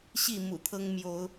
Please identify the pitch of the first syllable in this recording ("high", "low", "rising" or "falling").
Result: falling